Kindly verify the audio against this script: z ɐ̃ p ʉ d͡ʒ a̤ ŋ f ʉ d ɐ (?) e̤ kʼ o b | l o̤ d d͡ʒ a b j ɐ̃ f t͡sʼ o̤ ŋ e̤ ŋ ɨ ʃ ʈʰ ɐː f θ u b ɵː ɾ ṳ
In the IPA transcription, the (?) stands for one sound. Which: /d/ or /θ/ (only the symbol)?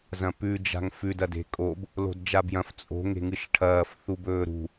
d